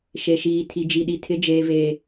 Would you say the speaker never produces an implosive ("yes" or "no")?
no